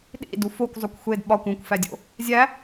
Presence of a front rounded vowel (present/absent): absent